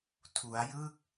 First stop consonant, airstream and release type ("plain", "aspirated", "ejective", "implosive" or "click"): aspirated